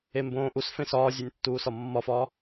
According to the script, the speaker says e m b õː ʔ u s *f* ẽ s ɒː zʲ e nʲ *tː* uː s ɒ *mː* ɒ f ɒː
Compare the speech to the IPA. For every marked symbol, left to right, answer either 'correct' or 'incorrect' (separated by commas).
correct, correct, correct